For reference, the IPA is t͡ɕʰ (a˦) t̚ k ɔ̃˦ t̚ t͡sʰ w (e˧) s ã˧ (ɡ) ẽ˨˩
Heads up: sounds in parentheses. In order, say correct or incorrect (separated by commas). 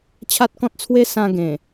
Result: correct, incorrect, correct